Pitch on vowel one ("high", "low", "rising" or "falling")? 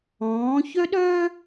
rising